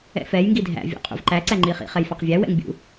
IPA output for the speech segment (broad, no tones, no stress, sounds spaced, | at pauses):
ɛ̰ f ɛ j ŋ ɡ i dʱ æ̰ vʲ ṵ qʼ ṵ v ǃ æ ǀ æ ŋ͡ǃ i χ ḭ χ ɛ j f ɑ q vʲ æ w ɛ̰ ŋ bʲ ṵ